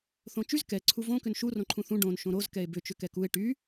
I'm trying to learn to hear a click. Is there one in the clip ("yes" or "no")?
yes